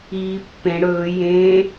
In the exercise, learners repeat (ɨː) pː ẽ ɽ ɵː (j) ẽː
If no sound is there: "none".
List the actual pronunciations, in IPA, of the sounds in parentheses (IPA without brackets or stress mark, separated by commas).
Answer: iː, j